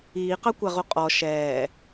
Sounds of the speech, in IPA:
iːqɑkʷæʁu qʼɔ ʃɛː

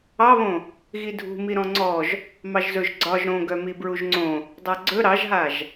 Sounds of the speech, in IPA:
ɑβõ | ɣidʱṳmi ɾɔ̃ŋ͡ǀɔʒ | mɑʒzɵʒ ɡ͡ǀɒʒ ɾõɡœmi bɹuʒŋ͡ǀõ | dˤaɡ͡ǀɵ ɾɑʒɦaʒ

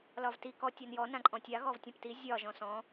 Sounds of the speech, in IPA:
lɒvti kɔ tʲanjɔ nãǃʼɔ̃tʲa ɣɔvtʲɔ̃pti zʲɒ ʒɔ̃sɔ̃

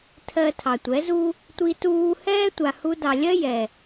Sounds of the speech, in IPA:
tʰɜ˧ tʰɑ˨tʷɛ˨˦zu˦ | tʷi˧tuː˧hɛː˦ tʷa˨hu˧dɑ˨lʲɜ˦ jɛ˨

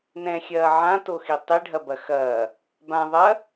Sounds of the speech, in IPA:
nɛ̃xʲɐː ʕãtoxi tˤiɖʱɐbɐ xɐ | bã ðˤɐ

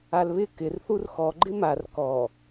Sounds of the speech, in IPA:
alβɪ kɪr θurxɔ ɡ͡ǃɪmar kɔ

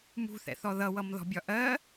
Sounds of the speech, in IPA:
mṳθɛ̰θɔ ðʌwʌmðɔ̤bʲɒ ʔɜ

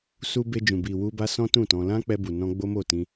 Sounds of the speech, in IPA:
su˧ be˧d͡ʒũ˨ bi˨wu˧ba˧sɔ̃˦ tũ˦˨tɔ̃˧ lã˦k͡pɛ˧bu˨ nɔ̃˧ ɡ͡bo˦mo˦˨tĩ˧

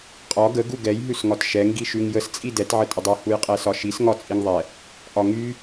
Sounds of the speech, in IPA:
qʼɒ ɡə ɡuɡɛj ɦʉsŋɒtʃɛŋ ɡiʃʉŋjəs t͡sʼidɛt ʕətʼədˤu hujqʼɛsɒʃis ŋɒt͡sʼiŋðˤɛ | ʔɒŋy

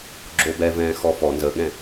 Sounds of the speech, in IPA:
ɡ͡ǁobɛvɛ̃ː xɔfɔ nzəɠɛ̃

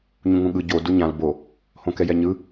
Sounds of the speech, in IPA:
ɲũŋũɠɯ ɟo duɲãl bo | hõkɛjɛɲɯ

